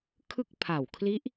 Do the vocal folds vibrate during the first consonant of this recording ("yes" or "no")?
no